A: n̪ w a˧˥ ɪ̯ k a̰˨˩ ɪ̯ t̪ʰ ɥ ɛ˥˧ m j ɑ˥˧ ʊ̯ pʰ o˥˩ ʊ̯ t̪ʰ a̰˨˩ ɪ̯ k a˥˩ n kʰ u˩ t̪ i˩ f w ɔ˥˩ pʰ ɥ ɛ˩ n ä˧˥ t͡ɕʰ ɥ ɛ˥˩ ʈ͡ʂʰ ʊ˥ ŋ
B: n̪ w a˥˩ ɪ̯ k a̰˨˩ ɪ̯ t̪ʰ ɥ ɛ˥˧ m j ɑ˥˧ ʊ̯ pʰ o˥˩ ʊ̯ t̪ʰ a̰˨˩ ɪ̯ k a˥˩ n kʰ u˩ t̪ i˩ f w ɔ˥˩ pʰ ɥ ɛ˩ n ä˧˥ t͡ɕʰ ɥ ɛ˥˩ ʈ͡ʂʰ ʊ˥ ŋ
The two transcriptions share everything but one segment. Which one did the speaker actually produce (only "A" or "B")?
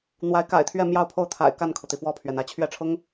A